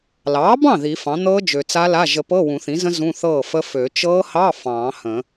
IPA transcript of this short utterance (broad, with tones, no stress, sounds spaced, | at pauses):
l ɑː˩˥ b ɑ̃˥˩ ð i˨˩˦ f ɑ̃˩˥ n̪ ɤː˦˥ d͡ʒ ø˨ t͡s a˦˥ l a˧˥˧ ʒ ə˨˩˦ p ɤː˧˥˧ w ũ˨˩˦ θ ĩ˩˥ z ə̃˦˥ z ũ˧˥˧ θ ɤː˥˩ f ə˦˥ f ø˨˩˦ t͡ʃ ɤː˦˥ h ɑ˧˥˧ f ɑ̃ː˨˩˦ h ə̃˨˩˦